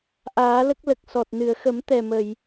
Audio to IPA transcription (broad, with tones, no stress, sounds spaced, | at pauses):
ʔ aː˨˩˦ l ə˦˥ k̚ l ə˨˩ k̚ s ɔ˨˩ t̚ n ɨ˨˩˨ ə̯ x ə˨˩˦ m t̪ ɛ˨˩ m ə˨˩˨ j